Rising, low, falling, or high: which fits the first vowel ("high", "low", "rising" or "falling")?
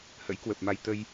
rising